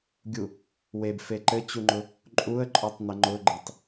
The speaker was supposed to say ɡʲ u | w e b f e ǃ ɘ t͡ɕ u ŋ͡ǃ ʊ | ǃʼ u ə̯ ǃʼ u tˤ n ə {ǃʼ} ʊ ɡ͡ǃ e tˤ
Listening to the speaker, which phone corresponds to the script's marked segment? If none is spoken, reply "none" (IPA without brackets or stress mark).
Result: ŋ͡ǃ